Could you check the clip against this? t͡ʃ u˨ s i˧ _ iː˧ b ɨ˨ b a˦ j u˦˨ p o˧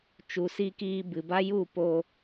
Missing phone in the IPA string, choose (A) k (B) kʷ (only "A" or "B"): A